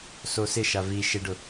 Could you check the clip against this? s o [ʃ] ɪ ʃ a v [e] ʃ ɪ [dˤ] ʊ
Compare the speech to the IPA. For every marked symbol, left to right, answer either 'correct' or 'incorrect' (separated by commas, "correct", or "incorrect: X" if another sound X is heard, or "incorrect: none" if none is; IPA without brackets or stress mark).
incorrect: s, incorrect: i, incorrect: ɖ